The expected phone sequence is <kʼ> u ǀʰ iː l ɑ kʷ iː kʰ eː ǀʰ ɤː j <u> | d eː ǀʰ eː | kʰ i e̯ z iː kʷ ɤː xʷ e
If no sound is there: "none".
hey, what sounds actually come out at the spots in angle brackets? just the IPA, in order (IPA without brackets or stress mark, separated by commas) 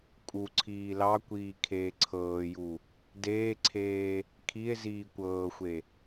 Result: kʼ, u